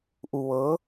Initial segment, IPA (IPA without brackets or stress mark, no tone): ʔ